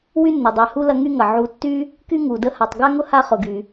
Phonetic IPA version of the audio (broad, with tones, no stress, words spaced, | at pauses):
wy˥nːʊ˩dˤæ˨hu˥ lɐ˦ŋy˥ŋɐ˩ ʕu˨tːy˥ | ky˥ŋu˩ də˦ha˨tˤ ɡa˥ŋʊ˥ha˦ χʊ˨ɡy˨